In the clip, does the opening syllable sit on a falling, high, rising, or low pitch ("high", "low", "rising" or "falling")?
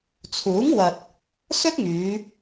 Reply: rising